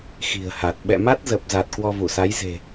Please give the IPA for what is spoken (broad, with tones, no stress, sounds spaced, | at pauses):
x i̤˨˩ ə̯ h a˨˩ t̚ ɓ ɛ̰˧˨ m a˦˥ t̚ z ə˨˩ p̚ z a˨˩ t̚ k w ɔ˧ v u˧˩ s a˨˦ j z e̤˨˩